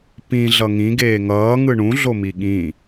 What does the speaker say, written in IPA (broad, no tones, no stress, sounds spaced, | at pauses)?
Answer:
p ĩ ɮ ʌ ŋ ĩ ɡ eː ŋ ʌː ŋ ɯ ɳ ũ ɮ o m i ɠ ĩ